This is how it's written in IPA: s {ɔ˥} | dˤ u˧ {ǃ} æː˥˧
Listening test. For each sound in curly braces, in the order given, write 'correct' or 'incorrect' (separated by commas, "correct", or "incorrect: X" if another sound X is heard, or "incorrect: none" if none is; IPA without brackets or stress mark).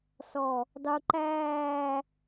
incorrect: ɔ˧˩, correct